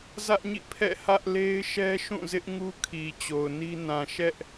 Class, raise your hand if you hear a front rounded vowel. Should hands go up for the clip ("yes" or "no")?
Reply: no